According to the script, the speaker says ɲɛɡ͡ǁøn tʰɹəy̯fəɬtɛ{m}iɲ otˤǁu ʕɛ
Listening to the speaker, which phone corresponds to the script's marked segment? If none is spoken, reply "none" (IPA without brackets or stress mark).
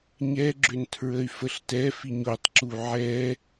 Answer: f